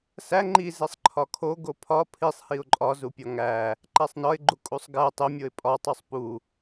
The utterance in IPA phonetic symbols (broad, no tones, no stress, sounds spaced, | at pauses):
s æ ŋ͡ǃ i z e sˤ ǃʰ ɒ kʰ o ɡ o pʰ ɒ pʰ i sˤ h i ʊ̯ ǃʼ ɒ z u pʲ ɒ ŋ æ | ǃ æ sˤ n ɒ ɪ̯ ɡ͡ǃ u kʼ u sˤ ɡ æ tˤ e mʲ o ɪ̯ pʼ ɒ tˤ u sˤ p u